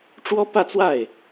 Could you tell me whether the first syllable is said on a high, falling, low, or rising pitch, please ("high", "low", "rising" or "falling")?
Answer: high